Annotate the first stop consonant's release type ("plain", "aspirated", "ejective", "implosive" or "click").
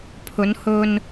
aspirated